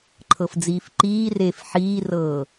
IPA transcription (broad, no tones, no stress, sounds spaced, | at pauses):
ǃʰ ɤ f d͡z iː f ǃ iː r eː f ħ iː r ɤː